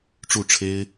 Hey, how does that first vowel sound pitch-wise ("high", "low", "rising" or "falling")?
falling